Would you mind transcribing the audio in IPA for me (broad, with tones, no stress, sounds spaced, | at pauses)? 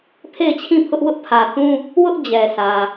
pʰ e˦˨ ɪ̯ t͡ɕʰ ĩ˦˨ pʰ ʊ˦ ʔ w ʊ˦ ʔ pʰ ä˨ θ ũ˦ | w ʊ˦ ʔ d͡ʑ ɛ˨ sʰ ä˨